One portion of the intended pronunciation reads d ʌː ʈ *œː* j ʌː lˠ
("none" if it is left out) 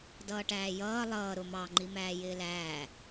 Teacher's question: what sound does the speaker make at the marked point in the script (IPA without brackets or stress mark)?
æː